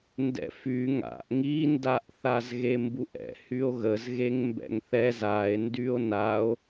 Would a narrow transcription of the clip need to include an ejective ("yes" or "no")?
no